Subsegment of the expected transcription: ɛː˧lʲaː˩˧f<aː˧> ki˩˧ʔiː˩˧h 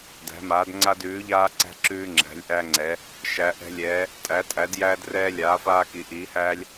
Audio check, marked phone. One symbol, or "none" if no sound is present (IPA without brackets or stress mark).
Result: aː˧